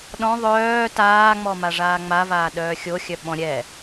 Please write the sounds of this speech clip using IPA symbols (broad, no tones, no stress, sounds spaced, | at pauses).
ɗ ɔ̃ ðˤ œː t aː ŋ͡m ɔ m a ʐ aː ŋ͡m a v aː ɗ œː xʲ o xʲ œ ɓ ɔ̃ ɾʲ ɛ